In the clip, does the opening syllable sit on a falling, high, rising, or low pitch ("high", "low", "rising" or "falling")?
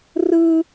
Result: high